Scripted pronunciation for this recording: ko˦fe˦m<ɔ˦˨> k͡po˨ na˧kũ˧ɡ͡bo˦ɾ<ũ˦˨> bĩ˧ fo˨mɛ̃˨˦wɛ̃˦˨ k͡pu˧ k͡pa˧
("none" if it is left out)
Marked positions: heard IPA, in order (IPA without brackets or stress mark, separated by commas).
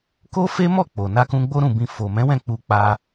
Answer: ɔ˦˨, ũ˦˨